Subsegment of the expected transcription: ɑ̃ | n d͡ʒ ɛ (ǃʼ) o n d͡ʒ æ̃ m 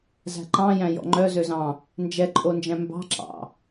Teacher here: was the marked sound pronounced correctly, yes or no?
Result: yes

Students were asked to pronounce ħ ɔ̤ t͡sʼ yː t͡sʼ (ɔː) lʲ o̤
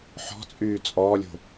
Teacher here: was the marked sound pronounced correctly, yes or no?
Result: yes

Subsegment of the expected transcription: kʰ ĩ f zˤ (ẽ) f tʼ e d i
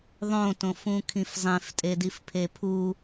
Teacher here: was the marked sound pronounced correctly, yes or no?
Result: yes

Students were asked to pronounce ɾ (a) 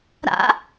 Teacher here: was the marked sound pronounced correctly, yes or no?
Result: no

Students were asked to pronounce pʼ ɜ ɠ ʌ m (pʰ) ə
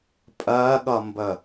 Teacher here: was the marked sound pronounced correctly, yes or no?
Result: no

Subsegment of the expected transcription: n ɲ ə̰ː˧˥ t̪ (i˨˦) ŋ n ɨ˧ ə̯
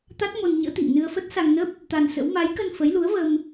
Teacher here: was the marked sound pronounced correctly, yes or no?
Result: no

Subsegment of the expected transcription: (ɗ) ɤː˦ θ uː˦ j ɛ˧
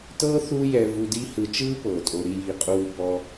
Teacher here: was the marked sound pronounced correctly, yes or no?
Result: no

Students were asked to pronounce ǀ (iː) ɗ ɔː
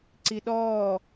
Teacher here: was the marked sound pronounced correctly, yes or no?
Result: no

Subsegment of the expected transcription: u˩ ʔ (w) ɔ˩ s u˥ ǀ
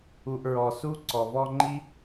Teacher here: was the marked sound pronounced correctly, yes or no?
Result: no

